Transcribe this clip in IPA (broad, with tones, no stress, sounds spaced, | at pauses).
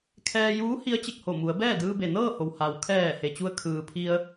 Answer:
kʰ ɛː˧ j uː˧˥ h i˧˥ ə̯ t͡ɕ e˧˩ k̚ h o˧˩ m u˩˧ ə̯ b ɛː˥˨ d ɯː˧ b e˩ n ɤː˥˨ h o˩ w h a˩ w kʰ ɛː˧˩ h e˩ t͡ɕ u˧ ə̯ kʰ ɯː˩ pʰ i˧ ə̯